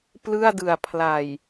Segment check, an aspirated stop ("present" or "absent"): present